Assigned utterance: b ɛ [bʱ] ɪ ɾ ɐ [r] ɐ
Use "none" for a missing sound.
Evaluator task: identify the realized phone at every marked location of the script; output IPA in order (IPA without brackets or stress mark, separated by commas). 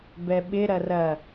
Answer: ɓ, r